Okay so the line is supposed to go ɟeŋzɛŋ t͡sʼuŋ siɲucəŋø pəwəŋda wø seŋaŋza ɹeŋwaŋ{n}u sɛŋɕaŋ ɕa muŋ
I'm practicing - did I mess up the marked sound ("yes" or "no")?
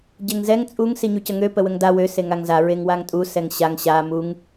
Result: yes